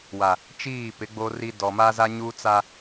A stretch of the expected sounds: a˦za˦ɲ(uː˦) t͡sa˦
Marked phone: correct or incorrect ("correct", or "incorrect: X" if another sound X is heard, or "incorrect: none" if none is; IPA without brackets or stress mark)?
correct